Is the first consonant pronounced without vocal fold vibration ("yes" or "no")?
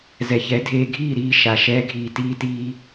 no